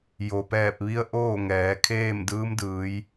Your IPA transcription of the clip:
jo˩pɛː˧˩p̚ʋi˧˥ə̯ ʔoː˥˨ŋɛː˩˧kʰeː˥˨m dɯː˧˥mdɯː˩˧j

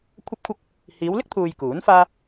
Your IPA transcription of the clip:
kʷʰɐ˥p̚kʷʰɐ˥k̚ | hiː˨˧wlɪ˥k̚t̪ʰuː˨j kuː˨˥nfaː˥

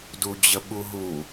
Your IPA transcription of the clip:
dud͡ʑəɓuɦu

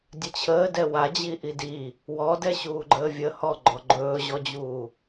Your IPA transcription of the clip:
dʲət͡ɕʰəːdɛ wad͡ʑiʔi di | wɔdɛɕuː ɡ͡ǃəːvʲə hɔɡ͡ǃɔ ɡ͡ǃɵːʑɔd͡ʑuː

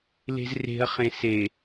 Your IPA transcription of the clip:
le̤zre̤ɐ̯ χẽse

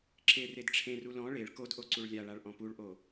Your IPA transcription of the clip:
ǁe redʈ͡ʂʰẽru lɔ̃ ɭeɭ kodʔo ǀuɭlʲaɭaɭ ʔɔ̃puɭʔo

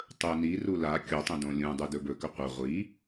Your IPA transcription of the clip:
tˤɵ niru la kʲotˤũdõ lʲũdˤudɵ bɵkɵ qʷɐ ʁʷi

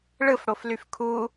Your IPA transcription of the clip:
ɭɯfɽoflyf kʰu

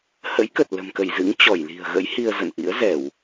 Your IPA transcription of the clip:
hə̰˧˥jkə˨˩t̚ lə̤˨˩mkə˧˩jzɨ̰˧˥ŋ t͡ɕɔ˧˩jli̤˨˩ə̯ɣə̰˧˥jhi˧ə̯ zə̰˧˨nʔḭ˧˥ə̯ zɛ˧˩˨w

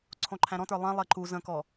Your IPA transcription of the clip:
ǀʰõǃʰæ̃ɾɔ̃tə˞ lˠɛ̃lˠɛ ǃu zə̃kɔ

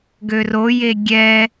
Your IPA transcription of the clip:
ɡøroje ɡʲɛ

